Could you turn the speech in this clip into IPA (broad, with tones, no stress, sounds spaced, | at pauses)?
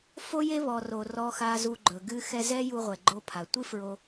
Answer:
f o˥ j e˥ β ɔ˩ r o˩ r ɔ˧ x a˧ z u˧ ɡ͡ǃ ɵ˩ ɡ ɨ˧ x ɛ˧ z ɛ˥ j u˧ ʁʷ ɛ˩ ɡ͡ǃ o˧ pʰ a˩ tʷ ɨ˥ f ɹ o˧